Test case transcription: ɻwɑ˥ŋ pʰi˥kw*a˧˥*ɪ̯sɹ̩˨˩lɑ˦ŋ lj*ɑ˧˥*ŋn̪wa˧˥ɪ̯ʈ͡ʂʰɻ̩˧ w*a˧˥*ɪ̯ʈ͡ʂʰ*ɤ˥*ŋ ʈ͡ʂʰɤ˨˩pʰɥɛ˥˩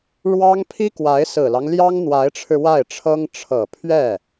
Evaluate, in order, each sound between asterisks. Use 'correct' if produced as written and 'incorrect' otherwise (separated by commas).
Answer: correct, incorrect, incorrect, correct